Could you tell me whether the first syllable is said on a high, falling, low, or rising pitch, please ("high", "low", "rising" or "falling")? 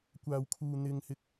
low